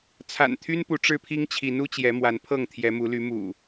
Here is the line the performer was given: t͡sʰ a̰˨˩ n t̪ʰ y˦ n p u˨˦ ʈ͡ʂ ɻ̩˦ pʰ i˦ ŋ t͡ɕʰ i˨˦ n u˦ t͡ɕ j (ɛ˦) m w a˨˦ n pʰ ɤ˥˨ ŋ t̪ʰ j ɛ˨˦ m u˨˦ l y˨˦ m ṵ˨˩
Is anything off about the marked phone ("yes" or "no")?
yes